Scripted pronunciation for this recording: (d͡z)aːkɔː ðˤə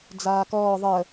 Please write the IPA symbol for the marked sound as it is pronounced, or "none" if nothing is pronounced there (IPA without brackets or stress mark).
d͡z